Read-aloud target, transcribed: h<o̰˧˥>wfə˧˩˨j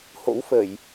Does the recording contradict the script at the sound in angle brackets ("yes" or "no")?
no